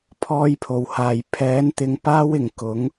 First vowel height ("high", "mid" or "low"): mid